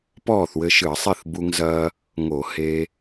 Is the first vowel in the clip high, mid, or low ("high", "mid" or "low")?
mid